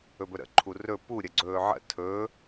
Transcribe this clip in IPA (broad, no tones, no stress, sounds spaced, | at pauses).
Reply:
ɵ b ɵ ɾ ə̰ ǃʰ u r ɵ p u ɾʲ ə ɡ͡ǀ ɵː ʕ ə̰ tʰ ɵ